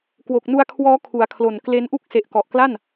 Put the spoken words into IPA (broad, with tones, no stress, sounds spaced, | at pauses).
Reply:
k w o˨˩ k̚ n u˧ a̯ kʰ w ɔː˦˥ kʰ u˩˦ a̯ kʰ l o˨˩ n k l e˦˥ n ʔ u˥˩ k̚ s e˨˩ ʔ k ɔ˨˩ ʔ k l a˥˩ n